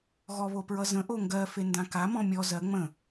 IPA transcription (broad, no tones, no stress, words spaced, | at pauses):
ɣɔβopɹʌzə̃ ʔoŋɡɜ fendãka mɔ̃mʲɔ zɜ ŋ͡mə̃